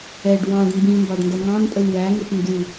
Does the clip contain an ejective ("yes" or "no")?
yes